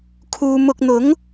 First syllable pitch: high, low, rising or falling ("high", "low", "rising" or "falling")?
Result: low